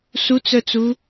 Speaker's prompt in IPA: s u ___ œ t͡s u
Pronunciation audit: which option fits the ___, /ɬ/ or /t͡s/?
t͡s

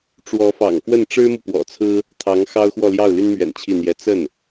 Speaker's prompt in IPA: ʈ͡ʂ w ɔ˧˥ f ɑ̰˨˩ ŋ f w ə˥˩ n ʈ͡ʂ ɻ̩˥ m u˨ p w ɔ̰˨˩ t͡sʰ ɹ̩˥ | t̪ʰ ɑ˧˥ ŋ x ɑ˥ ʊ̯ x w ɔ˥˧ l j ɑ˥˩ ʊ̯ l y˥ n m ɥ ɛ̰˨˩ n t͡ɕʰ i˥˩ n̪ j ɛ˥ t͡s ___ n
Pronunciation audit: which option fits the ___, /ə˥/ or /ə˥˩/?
ə˥˩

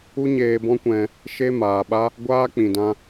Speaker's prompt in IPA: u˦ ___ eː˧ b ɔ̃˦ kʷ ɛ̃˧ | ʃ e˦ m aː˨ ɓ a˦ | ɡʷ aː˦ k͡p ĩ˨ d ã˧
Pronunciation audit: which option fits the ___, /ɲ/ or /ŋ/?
ɲ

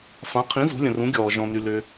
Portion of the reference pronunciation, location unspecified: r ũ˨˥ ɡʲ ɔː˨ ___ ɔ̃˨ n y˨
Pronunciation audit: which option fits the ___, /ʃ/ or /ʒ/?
ʒ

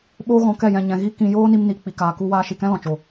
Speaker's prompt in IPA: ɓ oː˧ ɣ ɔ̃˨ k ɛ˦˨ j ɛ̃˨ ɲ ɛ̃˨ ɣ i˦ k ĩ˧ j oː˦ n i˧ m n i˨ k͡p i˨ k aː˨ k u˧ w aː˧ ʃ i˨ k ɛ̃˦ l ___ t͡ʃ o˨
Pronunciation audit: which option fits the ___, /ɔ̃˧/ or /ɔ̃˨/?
ɔ̃˨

